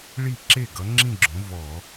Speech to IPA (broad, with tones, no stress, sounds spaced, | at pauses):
ɭ i˥˩ ǁ e˥˩ ɡ ʌ˨˥ ŋ͡ǁ ĩ˥˧ ɡ͡ǁ õ˨˥ v ɔ˧˩˧